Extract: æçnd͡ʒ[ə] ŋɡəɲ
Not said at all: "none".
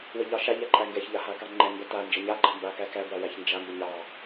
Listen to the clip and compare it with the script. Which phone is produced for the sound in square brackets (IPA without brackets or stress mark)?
a